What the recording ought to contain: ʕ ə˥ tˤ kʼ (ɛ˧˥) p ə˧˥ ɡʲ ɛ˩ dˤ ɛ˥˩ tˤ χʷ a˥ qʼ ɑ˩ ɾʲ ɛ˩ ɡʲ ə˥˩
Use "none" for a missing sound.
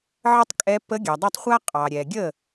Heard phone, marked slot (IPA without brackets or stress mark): ɛ˧˥